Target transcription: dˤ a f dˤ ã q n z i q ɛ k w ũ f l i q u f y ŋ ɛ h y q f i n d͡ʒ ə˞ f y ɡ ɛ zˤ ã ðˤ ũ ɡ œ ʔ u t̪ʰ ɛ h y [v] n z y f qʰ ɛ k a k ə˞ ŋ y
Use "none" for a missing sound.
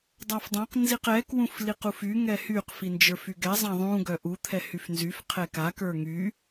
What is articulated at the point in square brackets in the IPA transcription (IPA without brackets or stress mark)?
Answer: f